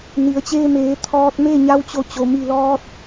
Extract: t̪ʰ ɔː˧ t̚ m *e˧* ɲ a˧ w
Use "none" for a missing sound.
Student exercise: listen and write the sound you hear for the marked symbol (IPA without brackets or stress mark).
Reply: e˥˨